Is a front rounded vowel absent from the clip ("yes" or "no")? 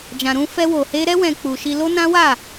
yes